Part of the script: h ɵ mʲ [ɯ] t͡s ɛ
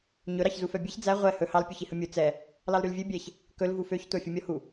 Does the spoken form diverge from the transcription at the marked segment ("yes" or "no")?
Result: yes